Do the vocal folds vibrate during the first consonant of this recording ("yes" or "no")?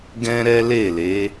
yes